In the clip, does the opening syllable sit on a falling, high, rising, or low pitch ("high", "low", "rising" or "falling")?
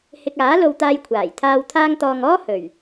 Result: low